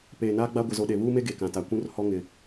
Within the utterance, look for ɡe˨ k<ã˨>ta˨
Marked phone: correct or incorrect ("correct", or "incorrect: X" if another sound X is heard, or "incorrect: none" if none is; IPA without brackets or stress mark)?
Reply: correct